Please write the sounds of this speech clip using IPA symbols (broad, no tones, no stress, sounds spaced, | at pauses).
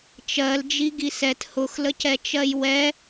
t͡ʃ ɜ l d͡ʒ i ɡ i s ɛ t h ʊ x l ə c ɛ t͡ʃ ɜ j w ɛ